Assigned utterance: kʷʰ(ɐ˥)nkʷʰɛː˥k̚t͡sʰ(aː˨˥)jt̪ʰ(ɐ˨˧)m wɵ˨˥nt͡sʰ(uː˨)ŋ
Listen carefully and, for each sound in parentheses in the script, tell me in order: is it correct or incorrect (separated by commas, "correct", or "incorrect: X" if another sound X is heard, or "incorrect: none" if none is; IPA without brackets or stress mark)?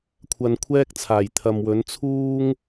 incorrect: ɐ˧, incorrect: aː˨˩, incorrect: ɐ˨, incorrect: uː˥